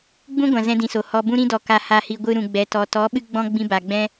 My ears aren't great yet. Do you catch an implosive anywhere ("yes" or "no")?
yes